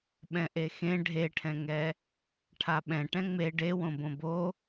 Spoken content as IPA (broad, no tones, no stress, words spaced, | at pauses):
ɓɛ̃ʔexẽ ɖʱeʈʰɛ̃ŋɛ | ʈʰaɓɛ̃ ʈɛ̃ŋ͡me ɖewõ bõbo